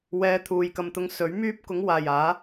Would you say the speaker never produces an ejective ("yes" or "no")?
yes